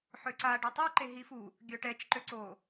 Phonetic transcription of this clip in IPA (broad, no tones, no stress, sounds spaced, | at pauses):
ħ ø ǀ a ɖ e tˤ o ǃ e ɦ i f u | ɡʲ œ ʈ ɛ t͡ʃ ǃ ø ǀ o